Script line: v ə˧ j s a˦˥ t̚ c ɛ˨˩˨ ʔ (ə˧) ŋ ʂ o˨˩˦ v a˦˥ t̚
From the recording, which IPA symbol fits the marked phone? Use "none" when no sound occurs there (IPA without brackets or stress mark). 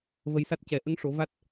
ə˧˥